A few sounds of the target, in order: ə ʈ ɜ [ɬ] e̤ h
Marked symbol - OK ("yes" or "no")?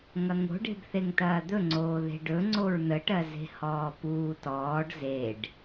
no